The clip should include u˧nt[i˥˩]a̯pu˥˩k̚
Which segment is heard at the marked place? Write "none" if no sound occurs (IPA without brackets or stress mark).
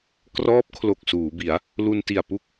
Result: i˨˩